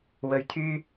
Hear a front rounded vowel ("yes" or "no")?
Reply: yes